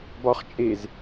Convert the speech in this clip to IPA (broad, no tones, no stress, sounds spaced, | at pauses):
b ɒ χ t͡ʃʼ e z